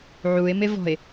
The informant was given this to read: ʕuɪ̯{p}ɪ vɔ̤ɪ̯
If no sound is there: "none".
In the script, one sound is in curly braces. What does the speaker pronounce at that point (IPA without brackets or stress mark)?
m